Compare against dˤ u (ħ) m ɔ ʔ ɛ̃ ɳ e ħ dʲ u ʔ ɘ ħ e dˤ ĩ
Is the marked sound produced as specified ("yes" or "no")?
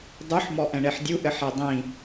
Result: yes